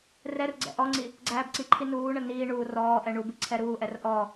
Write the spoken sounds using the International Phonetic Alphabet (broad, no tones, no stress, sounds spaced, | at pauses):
r ɛ r ɡ͡ǀ ɛ̰ ʔ ɔ ŋ͡ǀ i | ɡ͡ǀ æː b ǀ i ǃʰ i n uː ɳ ə n iː ɳ uː r ɔː ʔ ɛ ɳ u b i ǀʰ ɛ ɾ uː ʔ ɛ r ʔ ɔ